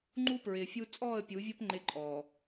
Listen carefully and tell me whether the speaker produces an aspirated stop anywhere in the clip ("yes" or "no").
no